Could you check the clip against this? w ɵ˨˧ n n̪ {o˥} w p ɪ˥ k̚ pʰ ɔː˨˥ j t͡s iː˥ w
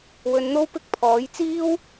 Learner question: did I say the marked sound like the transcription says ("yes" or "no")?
yes